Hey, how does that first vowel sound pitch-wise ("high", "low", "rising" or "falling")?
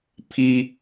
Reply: high